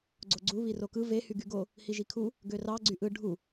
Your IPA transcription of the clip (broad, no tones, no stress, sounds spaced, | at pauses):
ɡ͡ǀ o ɡ͡ǀ u β i r o k ɯ v e h y ɡ y ɡ o | h i ʒ i kʰ u | ɡ ø r ɑ ɡ͡ǀ y ʔ ɯ ɖʱ u